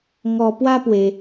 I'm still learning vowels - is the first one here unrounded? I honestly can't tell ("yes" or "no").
no